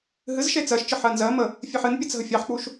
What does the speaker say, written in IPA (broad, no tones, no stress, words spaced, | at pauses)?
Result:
ɦɨzʃe t͡sɜʃt͡ʃɯ ħɜnzɜmə | fʲeħɨnpʲɜt͡s ɦəfʲɑħk͡puʃ